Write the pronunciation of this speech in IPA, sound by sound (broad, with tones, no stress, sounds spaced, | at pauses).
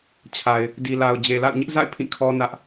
t͡ɕʰ a˨ ɪ̯ | d i˨ l a˨ ʊ̯ d͡ʑ e˨ l a̰˦˨ ʊ̯ ɲ ɪ˦ ʔ z a̰˦˨ ɪ̯ pʰ ĩ˦˨ kʰ ɔ˦ n ä˦ ʔ